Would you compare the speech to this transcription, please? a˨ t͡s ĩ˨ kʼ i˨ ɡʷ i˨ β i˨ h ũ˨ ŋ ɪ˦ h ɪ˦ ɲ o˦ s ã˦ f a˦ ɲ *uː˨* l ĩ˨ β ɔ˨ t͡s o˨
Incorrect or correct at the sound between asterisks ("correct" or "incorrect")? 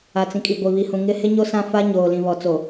incorrect